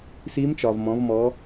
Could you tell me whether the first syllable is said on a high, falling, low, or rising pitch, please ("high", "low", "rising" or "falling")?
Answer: rising